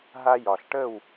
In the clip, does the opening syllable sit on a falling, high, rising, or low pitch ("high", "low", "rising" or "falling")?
high